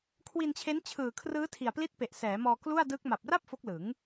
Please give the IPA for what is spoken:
kʰ w i˧ n t͡ɕʰ e˦˥ n t͡ɕʰ ɯː˨˩ kʰ r ɯː˦˥ tʰ i˨˩ a̯ p l i˦˥ t̚ p e˨˩ ʔ s ɛː˩˦ m ɔː˧ k l u˥˩ a̯ d ɯː˦˥ k̚ m a˨˩ p̚ r a˥˩ p̚ f o˦˥ k̚ l ɯ˩˦ ŋ

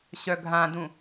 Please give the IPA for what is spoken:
ɕ œ ɡʱ ã d ũ

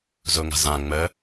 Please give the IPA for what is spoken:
z ʊ ŋ a̤ z ã ŋ͡m ə

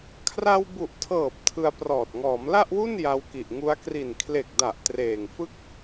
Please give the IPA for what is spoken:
kʰ r a˧ w b u˨˩ ʔ tʰ ɤː˨˩ p̚ tʰ ɯ˧ a̯ p r ɔː˨˩ t̚ ŋ ɔː˩˦ m l a˥˩ ʔ w u˥˩ n j a˧ w k i˨˩ ʔ ŋ u˦˥ a̯ k r i˨˩ n kʰ l e˨˩ k̚ d a˨˩ ʔ t r eː˨˩ ŋ f ɯ˥˩ k̚

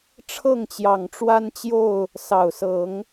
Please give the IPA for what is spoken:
ʈ͡ʂʰ ɤ˥˨ ŋ t͡ɕ j ɑ˨˩ ŋ ʈ͡ʂ w a˦ n t͡ɕ j o˥˨ ʊ̯ | s ɑ˨˩ ʊ̯ s ɤ˨˦ ŋ

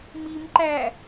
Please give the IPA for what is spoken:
m i m ǃ æ

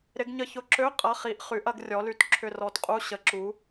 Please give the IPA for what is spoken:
ɾ ɪ˨˥ ɡ ɲ ə˦˨ ç ʊ˧˥˧ ǁ ø˧˥˧ qʼ ɐ˧˥˧ χ i˨˥ ʔ χ y˨˥ ʔ ɐ˨˥ ɡ rʲ ɔ˨˥ l y˦˨ t ǁʰ ʏ˦˨ r ɔ˨˥ t qʼ u˧˥˧ ɕ ə˨˥ ǁ u˨˥

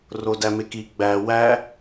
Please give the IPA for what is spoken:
r o d æ m e k i ɡ͡b æ w æ

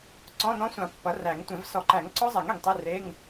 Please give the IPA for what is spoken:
ǀ ɔ̃˧˥˧ n ɔ̃˦˥ sʷ ã˨˩˦ pː ʌ˩˥ r æ˨˩˦ ŋ tʷ ẽ˨˩˦ v s ɔ˨˩˦ ǃ æ˨˩˦ ŋ ǀ ɔ˦˥ zˤ ɛ˨˩˦ ŋ ɛ˩ ŋ tˤ e˧˥˧ r e˧˥˧ ŋ

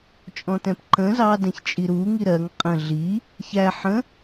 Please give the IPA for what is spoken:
t͡ʃʼ ɔ̃ t ɛ̃ p ǃ ə̃ z ɑ d ɛ̃ ç t͡ʃʼ i ɾ u ŋ i ɾ ɜ ŋ qʼ ə̃ ɮ i | ç æ ħ ə̃

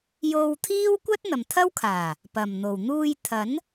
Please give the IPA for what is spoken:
j o˧ w t̪ʰ iː˥ w kʷ ɐ˥ t̚ n̪ ɐ˨ m t̪ʰ ɐ˥ w kʰ aː˨˩ | p ɐ˨ m n̪ o˨ w n̪ uː˧ j t̪ʰ ɐ˨˥ n

